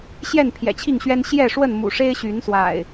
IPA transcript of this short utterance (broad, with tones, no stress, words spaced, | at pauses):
ɕjɛ˥˨npʰjɛ̰˨˩t͡ɕʰi˥˨ŋɕɥɛ˦n ɕjɛ˥˨ʂwə˥˨n mṵ˨˩ʂe˦ɪ̯ɕy˨˦nswa̰˨˩ɪ̯